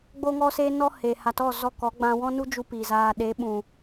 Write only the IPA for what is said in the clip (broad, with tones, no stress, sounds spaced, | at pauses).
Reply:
ɡ͡b o˦ ŋ ɔ˦ s e˦ n ɔ˦ h e˨ h a˨ t ɔ˦˨ z ɔ˦˨ k ɔ˨˦ ɡ͡b ã˧ w ɔ̃˦ n u˦ d͡ʒ u˦ p i˨ z aː˧ ɗ e˨˦ ɓ ũ˨